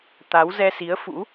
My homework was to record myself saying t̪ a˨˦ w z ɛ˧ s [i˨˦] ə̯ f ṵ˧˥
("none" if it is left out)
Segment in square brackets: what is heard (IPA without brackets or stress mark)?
i˨˦